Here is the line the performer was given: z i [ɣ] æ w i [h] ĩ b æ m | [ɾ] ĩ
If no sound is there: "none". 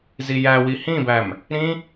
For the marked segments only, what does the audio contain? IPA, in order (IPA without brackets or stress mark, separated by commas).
j, h, ɾ